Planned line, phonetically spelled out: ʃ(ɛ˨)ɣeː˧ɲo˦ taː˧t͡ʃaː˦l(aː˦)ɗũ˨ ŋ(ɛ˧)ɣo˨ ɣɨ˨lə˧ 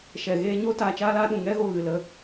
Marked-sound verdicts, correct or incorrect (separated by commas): correct, correct, incorrect